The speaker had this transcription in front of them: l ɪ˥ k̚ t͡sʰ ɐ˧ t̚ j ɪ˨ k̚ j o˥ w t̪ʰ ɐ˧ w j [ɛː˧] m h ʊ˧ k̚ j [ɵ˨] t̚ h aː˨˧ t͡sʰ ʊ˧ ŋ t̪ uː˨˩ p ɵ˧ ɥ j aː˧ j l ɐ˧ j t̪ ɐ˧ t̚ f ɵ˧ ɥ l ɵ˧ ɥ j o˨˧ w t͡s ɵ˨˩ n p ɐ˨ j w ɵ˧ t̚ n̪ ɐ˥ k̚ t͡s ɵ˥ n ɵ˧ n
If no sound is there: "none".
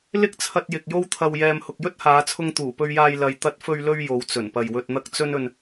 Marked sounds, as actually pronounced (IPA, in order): ɛː˧, ɵ˥

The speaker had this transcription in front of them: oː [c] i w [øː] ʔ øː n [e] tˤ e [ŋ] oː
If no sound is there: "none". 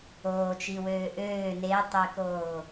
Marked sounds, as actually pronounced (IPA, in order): t͡ʃ, øː, e, k

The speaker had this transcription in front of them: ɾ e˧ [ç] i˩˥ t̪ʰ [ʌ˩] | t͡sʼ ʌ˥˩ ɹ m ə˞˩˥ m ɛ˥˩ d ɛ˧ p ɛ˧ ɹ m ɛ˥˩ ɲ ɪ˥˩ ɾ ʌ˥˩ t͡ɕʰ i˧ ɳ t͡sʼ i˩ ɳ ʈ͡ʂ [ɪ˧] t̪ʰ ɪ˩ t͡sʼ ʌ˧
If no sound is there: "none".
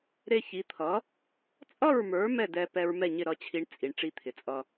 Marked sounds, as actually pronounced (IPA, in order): ç, ʌ˩˥, i˧

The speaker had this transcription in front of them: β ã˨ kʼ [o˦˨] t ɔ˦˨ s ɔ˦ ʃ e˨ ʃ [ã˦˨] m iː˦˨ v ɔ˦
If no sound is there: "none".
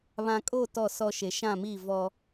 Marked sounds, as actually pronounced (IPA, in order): o˦˨, ã˦˨

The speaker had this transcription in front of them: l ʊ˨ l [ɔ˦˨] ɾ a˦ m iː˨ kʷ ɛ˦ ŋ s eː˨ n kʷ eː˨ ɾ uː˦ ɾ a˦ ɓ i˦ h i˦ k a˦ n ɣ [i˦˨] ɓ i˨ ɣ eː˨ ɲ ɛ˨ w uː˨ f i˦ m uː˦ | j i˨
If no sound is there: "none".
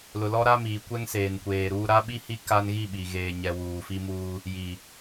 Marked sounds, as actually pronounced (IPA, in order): ɔ˦, i˦˨

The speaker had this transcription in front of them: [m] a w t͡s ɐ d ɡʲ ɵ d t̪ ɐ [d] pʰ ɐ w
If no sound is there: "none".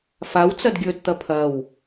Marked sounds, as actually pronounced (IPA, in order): f, none

